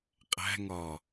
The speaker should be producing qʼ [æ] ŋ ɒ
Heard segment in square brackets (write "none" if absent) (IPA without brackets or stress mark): æ̤